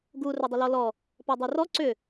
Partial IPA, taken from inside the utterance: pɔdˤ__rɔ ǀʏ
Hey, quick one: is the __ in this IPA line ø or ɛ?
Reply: ø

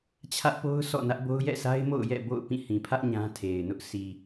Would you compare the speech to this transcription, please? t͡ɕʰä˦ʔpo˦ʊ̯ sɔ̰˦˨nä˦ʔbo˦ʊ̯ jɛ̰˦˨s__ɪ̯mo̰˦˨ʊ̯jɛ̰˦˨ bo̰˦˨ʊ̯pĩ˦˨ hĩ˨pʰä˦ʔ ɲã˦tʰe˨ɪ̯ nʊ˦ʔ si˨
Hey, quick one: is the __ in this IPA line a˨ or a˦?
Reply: a˦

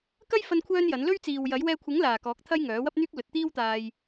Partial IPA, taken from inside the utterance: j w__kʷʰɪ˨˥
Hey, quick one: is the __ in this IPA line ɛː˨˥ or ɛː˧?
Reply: ɛː˧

